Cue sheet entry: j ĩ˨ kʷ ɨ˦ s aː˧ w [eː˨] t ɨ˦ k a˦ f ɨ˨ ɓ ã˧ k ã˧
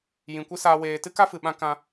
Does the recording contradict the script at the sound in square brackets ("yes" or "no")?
no